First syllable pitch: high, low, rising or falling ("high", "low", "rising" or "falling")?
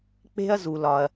high